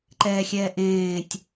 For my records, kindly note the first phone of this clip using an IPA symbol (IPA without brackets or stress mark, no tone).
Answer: ǃ